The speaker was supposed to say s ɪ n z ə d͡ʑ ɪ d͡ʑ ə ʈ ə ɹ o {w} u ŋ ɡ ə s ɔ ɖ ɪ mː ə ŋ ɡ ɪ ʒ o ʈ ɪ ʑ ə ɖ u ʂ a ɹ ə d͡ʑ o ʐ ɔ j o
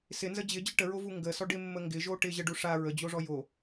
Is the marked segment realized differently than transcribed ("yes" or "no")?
yes